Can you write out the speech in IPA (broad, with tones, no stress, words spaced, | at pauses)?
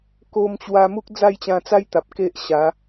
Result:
ko˧mt͡ɕwa˧mu˦k̚ d͡za˥˧jt͡ɕã˧t͡sa˦jt̪a˨p̚ ke˦ʔɕa˨˦